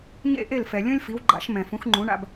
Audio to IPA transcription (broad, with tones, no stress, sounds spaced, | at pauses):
ɲ ḛ˥˩ ʔ e˥˩ l f ɛ˩ lʲ õ˥ lʲ f i˩˥ w ɡ͡ǃ a̰˩˥ ʃ m ɛ̃˩ f ũ˩˥ x ŋ͡ǃ ũ˩˥ ɳ a̰˧ b